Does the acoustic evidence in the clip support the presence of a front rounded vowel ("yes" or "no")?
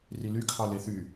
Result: yes